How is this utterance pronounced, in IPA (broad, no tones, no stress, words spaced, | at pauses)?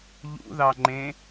ʎṵðɑŋ͡ǃẽ